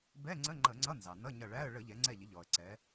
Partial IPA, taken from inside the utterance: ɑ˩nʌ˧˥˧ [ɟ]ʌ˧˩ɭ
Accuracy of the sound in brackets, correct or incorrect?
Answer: incorrect